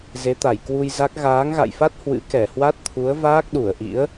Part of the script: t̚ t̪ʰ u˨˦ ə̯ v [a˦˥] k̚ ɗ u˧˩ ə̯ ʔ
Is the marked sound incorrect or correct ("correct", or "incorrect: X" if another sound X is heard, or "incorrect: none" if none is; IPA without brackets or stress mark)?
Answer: incorrect: aː˦˥